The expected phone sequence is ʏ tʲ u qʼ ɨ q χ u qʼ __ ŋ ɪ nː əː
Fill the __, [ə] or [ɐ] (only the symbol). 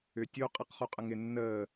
ə